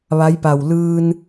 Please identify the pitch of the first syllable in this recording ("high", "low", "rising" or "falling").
rising